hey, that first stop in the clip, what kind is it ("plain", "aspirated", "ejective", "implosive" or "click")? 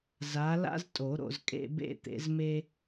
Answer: ejective